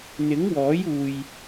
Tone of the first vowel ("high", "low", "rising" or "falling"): rising